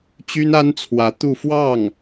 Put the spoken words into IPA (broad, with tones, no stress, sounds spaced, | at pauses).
t͡ɕ y˥ n a˥ n t͡sʰ w ä˧˥ t̪ u˥˧ f w ɑ˥˩ ŋ